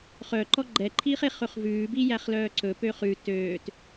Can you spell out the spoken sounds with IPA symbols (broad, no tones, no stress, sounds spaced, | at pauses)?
χ œ ǃ ɔ ɡ͡ǃ ɛ ǃʰ iː χ e χ ɵ χ v ʉː b i j æ χ l œː ǀ ɵ p øː χ ʉ t øː t